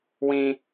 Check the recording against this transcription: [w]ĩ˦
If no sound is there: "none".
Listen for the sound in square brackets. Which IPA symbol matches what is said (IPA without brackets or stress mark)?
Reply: w